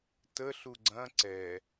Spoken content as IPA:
tə ɬuɡ͡ǀɐ̃ ǀɛ

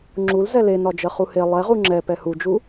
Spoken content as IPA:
ŋ͡ǁulzɛ lenɒd͡ʒɜχu he lˠɛʁu ŋ͡ǁɛ pɛhud͡ʒu

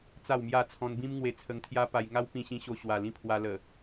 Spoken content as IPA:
t͡sa˥˧wmja˥˧ t͡sʰɔ̃˧nbĩ˦m ŋwe˧t͡sʰə˧ŋt̪ʰja˦pa˧j ŋa˦wpĩ˧ɕĩ˧ɕo˧ ɕwa˨˩lĩ˥˧pʰwa˧ lə˨˩

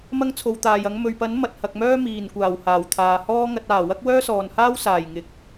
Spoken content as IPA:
mɐ˥ŋt͡sʰo˨˧wt̪aː˨jɐ˨˥ŋ mɵ˨ɥpɐ˨˥n mɐ˨t̚hɐ˨k̚mœː˥ miː˨˩nkʷaː˨˩w haː˨˩wt̪ʰaː˨hɔː˥ŋɐ˧t̚ aː˨˩ wɐ˥k̚wœː˥sɔː˨nhaː˥w saː˨˩jŋɪ˨k̚

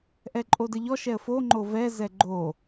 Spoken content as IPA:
ʔɛǃʼodəʎɔ ʃɛə̯fo ŋ͡ǃovɛ zɛɡ͡ǃo

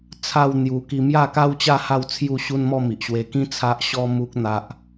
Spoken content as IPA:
t͡sʰa˥˧w n̪ju˧ ki˧mja˥˧ka˦wt͡ɕa˥˧ ha˥˧wt͡sʰju˥˧ɕu˦nmɔ˥˧ mi˨ʔɕwe˧kĩ˦ t͡sʰa˦ʔ ɕɔ˦mu˦k̚ n̪a˦ʔ

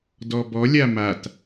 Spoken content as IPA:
dɔbɔlʲa mat

